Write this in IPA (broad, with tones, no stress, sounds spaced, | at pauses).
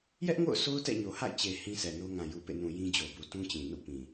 j ɛ˦ ʔ ŋ o̰˦˨ ʊ̯ sʰ o˦ ʊ̯ t ɛ̰˦˨ ɲ o˨ h a̰˦˨ ɪ̯ t͡ɕ e˨ h ĩ˦ s ɛ˨ n o˦ ŋ ã˨ j u˨ p ḛ˦˨ n ũ˨ j ĩ˦ d͡ʑ o˨ b u˨ t ũ˦ t͡ɕ ĩ˨ n ṵ˦˨ p ĩ˨